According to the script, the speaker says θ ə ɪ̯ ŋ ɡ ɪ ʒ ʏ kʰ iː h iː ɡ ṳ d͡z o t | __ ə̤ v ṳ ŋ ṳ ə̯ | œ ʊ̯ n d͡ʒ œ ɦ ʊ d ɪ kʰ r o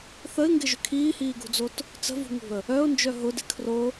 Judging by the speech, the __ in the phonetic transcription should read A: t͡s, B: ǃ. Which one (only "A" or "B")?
A